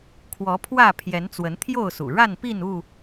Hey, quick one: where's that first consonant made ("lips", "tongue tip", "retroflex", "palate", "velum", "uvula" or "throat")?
velum